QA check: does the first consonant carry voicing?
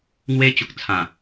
yes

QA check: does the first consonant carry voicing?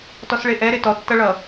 no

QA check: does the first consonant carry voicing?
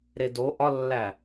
yes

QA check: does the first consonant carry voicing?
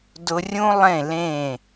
yes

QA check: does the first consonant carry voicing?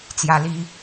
no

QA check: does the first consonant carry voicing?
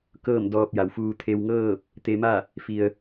no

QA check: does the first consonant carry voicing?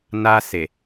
yes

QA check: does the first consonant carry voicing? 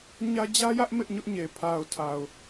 yes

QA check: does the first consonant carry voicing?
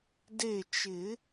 yes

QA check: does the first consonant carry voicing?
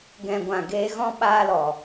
yes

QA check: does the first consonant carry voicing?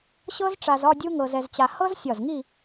no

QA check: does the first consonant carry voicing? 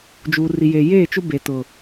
yes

